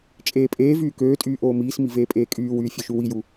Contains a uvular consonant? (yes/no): no